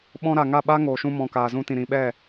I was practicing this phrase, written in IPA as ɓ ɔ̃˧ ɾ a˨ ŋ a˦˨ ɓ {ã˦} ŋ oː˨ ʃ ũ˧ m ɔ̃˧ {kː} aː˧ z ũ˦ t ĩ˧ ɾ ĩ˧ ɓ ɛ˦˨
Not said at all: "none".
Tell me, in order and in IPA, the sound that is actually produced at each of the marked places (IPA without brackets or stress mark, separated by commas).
a˦, k